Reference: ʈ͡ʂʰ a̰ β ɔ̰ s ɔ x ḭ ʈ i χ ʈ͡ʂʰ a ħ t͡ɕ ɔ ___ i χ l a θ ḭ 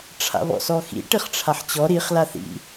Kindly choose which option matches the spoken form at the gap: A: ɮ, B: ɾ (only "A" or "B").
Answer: B